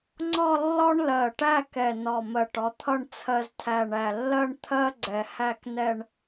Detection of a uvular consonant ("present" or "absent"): absent